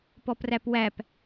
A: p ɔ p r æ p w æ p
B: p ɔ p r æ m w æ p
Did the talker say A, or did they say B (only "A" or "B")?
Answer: A